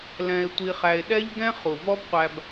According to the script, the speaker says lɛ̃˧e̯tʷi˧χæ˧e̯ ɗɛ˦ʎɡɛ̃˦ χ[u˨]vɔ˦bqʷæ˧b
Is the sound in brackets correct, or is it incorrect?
correct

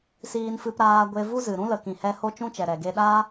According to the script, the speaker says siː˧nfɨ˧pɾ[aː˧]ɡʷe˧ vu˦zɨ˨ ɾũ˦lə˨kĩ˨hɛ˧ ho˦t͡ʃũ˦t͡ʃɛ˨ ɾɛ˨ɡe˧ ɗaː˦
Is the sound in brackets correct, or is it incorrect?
correct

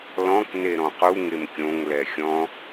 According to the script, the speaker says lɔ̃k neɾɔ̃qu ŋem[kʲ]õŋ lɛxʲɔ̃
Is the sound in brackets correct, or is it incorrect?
correct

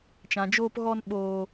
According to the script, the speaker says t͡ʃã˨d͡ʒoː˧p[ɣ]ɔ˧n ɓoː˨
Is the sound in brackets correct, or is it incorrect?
correct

